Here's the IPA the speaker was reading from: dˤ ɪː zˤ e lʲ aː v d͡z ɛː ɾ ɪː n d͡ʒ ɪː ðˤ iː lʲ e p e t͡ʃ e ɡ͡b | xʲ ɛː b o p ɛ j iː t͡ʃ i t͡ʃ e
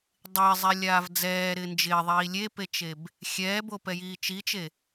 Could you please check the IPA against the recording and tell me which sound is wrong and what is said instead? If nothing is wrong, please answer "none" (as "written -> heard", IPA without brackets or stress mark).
ɡ͡b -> b